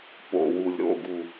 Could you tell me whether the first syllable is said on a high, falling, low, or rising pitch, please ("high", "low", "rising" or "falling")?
low